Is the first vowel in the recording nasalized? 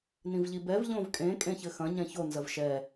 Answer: yes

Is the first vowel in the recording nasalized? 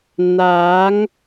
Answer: no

